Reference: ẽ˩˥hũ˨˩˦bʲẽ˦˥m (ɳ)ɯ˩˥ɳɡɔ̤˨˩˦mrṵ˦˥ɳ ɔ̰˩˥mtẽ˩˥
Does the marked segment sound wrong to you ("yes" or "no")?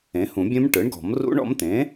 yes